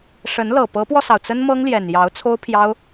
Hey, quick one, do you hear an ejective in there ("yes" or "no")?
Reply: no